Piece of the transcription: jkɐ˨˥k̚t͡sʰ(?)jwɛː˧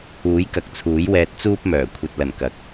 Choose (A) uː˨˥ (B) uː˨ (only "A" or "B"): A